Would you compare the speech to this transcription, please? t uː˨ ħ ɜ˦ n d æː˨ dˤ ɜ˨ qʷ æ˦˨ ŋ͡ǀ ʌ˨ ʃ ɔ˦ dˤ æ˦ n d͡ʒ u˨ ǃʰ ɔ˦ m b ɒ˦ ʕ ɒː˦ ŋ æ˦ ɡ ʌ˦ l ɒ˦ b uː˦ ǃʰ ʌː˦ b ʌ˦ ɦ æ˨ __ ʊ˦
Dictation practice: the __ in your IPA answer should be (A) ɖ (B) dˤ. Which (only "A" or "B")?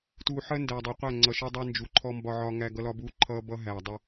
B